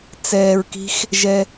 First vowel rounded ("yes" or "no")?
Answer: no